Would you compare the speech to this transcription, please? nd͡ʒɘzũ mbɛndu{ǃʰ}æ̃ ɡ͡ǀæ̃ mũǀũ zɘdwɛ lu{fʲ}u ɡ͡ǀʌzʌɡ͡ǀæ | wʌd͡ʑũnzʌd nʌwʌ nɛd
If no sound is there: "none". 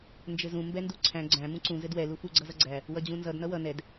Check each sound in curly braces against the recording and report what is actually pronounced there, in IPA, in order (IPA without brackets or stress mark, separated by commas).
ǀʰ, f